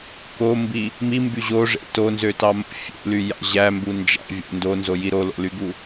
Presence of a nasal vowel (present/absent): absent